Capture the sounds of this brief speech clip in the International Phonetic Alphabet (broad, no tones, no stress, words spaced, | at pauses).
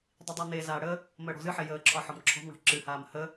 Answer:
dˤidˤun̪e zaːɽə | məːɽɔ̤zɨħe jəːǁʰɒħɒm ǁʰɔ̤mɳɔ̤ ǁɨhaːm hə